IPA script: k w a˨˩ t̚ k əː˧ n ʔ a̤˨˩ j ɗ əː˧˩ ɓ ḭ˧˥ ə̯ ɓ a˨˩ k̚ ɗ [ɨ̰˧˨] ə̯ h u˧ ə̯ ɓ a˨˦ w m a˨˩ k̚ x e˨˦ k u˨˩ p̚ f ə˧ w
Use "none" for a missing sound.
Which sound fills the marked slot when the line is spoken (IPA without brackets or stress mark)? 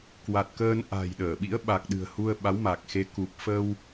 ɨ̤˨˩